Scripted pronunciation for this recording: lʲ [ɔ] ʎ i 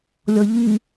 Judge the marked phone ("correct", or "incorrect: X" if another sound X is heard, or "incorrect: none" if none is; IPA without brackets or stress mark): correct